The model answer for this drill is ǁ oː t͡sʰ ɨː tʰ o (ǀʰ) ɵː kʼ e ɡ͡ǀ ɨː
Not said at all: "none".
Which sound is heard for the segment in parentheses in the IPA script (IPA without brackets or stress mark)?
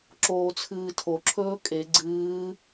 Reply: ǁʰ